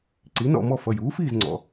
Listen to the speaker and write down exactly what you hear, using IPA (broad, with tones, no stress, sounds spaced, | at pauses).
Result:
ǀ i˩˥ n ɔ̰˥˨ m ɔ˥˨ f ʌ˩˧˩ j uː˩˥ f iː˥˨ z ŋ͡ǀ ɔ̰˩˧˩